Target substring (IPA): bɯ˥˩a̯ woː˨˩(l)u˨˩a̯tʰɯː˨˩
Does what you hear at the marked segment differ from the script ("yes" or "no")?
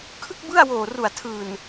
yes